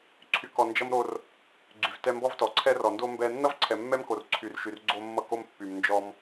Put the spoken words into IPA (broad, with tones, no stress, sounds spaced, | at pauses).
ǀʰ y˨ k ɔ˨ n d͡ʒ ʌ˦ m ɾ o˦ r | ɡ͡ǀ y˨ v t ɛ˦ m b ɔ˦ v t ɔ˨ ǀʰ ɛ˦ r ɔ˨ n d o˦ m b ɛ˦ nː ʌ˦ v ǀʰ ɛ˨ mː ɛ˦ m k o˨ r ǀʰ y˨ r ʃ y˨ r ɡ͡ǀ o˦ mː ʌ˦ k o˦˨ m pː y˨ m n d͡ʒ ɔ˦ m